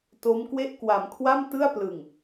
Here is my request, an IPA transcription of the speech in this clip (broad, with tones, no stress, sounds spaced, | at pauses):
t o˦˥ m k w e˥˩ ʔ k w a˩˦ m kʰ w a˥˩ m t ɯ˥˩ a̯ p l ɯ˨˩ ŋ